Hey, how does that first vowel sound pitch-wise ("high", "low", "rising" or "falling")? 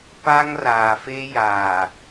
high